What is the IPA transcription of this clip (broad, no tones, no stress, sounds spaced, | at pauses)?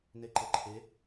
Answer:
n e ǃ ɤ ǃʰ e